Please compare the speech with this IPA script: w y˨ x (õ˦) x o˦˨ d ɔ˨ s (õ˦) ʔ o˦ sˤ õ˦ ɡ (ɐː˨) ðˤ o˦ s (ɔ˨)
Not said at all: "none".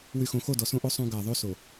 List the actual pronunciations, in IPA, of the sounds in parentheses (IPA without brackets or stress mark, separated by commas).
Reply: õ˨, õ˦, ɐː˨, o˨